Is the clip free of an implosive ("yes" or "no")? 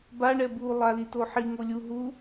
yes